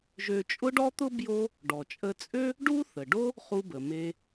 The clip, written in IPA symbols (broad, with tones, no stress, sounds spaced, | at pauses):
ʒ ø˧ t͡ʃʼ ʊ˥ ɖ ɔ˥ t̪ ʊ˥ b j o˥ | ɖ ɔ˩ t͡ʃʼ ə˧ t͡sʼ ø˥ | ɖ u˥ θ ə˩ ɖ o˥ | χ u˧ b ə˩ m e˧